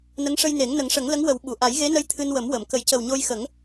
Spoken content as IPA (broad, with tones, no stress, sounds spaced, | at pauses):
n ə˧˥ ŋ ʂ ə˧ j n e˨˩˦ ŋ n ə˨˩˦ ŋ ʂ ə˨˩˦ ŋ l ə˧˥ ŋ w ə˨˩˦ w ɓ u˨˩˨ ʔ a˨˩˦ j ɣ e˧˥ n ə˧ j t̪ʰ ɨ˧ n w ə˨˩˦ m w ə˨˩˨ m k ə˨˩˦ j c ə˨˩ w ɲ o˧ j x ə˨˩˦ ŋ